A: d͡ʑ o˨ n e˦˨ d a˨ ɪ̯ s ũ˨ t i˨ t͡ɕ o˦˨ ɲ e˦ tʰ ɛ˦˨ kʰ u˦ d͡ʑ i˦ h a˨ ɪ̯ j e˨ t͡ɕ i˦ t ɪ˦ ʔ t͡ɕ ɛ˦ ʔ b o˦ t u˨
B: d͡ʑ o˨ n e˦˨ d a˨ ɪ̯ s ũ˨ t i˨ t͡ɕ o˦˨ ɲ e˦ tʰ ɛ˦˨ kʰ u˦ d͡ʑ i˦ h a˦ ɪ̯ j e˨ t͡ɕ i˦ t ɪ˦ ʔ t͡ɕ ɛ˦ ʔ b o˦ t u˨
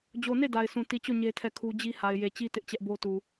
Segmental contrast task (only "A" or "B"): A